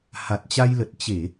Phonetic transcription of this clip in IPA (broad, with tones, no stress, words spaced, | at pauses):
ha˨˩t̚t͡ɕa˧jlə˨˩t̚ t͡ɕe˧˩˨